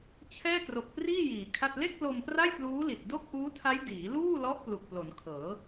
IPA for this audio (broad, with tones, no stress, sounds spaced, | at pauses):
t͡ɕʰ ɛː˥˩ k r o˨˩ k̚ p r iː˥˩ j iː˩˦ kʰ a˥˩ t̚ l e˥˩ k̚ l o˧ m p r a˥˩ j p l uː˦˥ l i˨˩ t̚ d o˥˩ k̚ ʔ uː˦˥ tʰ a˦˥ j d iː˩˦ l uː˥˩ l ɔ˦˥ ʔ p l u˨˩ k̚ p l o˩˦ n kʰ ɤː˩˦